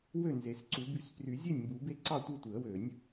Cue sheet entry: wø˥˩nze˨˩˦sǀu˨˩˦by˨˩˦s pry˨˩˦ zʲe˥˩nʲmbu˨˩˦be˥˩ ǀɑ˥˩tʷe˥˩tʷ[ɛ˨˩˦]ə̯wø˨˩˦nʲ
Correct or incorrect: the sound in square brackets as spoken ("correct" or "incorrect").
incorrect